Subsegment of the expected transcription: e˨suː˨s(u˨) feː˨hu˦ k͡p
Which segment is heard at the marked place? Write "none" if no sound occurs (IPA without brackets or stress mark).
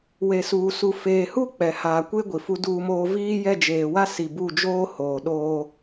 u˨